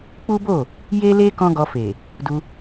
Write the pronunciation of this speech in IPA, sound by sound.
k͡p u˦ b o˦˨ | j e˦ l e˦ k ɔ̃˦ ɡ ɔ˧ f e˨ | d u˧

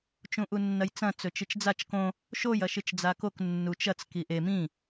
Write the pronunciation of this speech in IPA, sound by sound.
t͡ʃ ũ ʔ u nː ɐ j t͡s ɐ̃ t͡s ɵ t͡ʃ ɨ t͡ʃ d͡z a t͡ʃ k õ | ʃ o j ɐ ʃ ɨ t͡ʃ d͡z a k o k nː u t͡ʃ ɐ t͡s k i ʔ e m ĩ

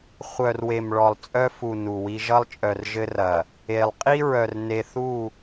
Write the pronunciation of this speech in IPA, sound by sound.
χʷ œ˨ r w e˨ m ɭ ɔ˨ lˠ t͡sʼ œ˦ f u˨ n u˨ w i˦ ʒ ʌ˦ lˠ t͡ʃʼ œ˨ r ʒ ɘ˦ r ɐ˨ | e˨ lˠ qʼ i˦ ɹ œ˨ r n e˨ θ u˦˨

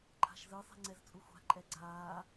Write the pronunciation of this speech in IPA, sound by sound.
ǃʰ a̤ ʃ z ɯ sˤ ɛ̤ ŋ͡ǀ ɛ z t͡sʼ u xʷ a̤ ǃʼ ɛ ɡ͡ǀ aː

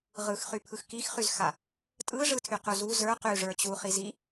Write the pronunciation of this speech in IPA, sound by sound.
ʁ ɯ x χ y pʰ ɯ x k i x χ y z x a | tʼ ɯ ʐ ɯ tʰ y q u z u z ə˞ q y ʐ ə˞ t͡ɕ u χ i z i

